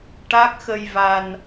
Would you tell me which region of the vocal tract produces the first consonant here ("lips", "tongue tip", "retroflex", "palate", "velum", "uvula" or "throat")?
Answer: retroflex